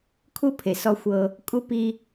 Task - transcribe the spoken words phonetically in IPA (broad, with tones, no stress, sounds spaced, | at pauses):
kʰ u˦ pʰ e˨ s ɔ˦ xʷ ɤ˦ | kʼ u˦ p i˦